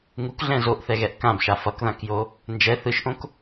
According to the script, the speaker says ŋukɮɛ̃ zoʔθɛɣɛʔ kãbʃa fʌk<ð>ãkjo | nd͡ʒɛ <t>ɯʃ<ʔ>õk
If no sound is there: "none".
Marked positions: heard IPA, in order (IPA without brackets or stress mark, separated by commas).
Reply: ð, θ, ʔ